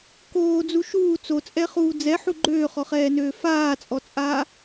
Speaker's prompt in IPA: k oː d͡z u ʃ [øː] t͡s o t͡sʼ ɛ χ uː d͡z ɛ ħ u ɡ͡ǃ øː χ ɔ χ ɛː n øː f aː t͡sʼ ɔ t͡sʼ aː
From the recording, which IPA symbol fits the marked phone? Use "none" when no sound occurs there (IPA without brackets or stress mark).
uː